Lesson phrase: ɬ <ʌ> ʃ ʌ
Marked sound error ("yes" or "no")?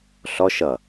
yes